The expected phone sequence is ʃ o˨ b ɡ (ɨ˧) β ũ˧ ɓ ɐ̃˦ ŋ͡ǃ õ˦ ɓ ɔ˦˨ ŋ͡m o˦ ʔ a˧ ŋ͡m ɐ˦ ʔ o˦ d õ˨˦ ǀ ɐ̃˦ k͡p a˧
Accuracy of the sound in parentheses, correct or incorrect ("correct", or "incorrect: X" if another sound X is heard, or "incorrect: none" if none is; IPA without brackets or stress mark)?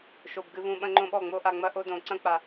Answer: correct